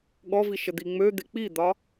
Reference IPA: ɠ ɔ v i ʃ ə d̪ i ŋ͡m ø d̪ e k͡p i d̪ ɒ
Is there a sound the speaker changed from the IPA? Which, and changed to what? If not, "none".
none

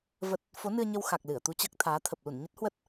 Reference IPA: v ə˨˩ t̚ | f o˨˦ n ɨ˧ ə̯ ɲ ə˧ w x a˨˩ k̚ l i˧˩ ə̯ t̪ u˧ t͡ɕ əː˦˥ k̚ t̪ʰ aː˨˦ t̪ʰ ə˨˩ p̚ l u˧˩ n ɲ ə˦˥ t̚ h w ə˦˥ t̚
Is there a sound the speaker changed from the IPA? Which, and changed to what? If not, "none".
i˧˩ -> ɨ˧˩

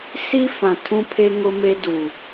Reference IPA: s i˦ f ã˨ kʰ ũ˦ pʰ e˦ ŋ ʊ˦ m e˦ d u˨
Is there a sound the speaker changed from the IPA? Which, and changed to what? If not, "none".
kʰ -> tʰ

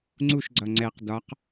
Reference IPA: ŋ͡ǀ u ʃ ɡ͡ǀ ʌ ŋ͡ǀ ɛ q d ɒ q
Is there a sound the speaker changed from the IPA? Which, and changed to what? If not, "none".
none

